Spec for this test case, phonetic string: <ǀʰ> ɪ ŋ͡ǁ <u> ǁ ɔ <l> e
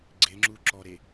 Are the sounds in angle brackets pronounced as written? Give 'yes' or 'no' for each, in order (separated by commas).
no, yes, no